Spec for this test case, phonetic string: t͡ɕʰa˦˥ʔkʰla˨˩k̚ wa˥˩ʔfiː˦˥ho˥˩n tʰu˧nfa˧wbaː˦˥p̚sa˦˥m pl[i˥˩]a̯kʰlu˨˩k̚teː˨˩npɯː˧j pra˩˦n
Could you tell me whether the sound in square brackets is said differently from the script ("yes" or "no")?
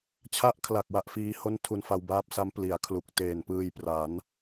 yes